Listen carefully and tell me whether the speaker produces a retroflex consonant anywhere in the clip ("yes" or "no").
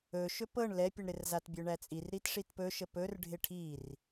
yes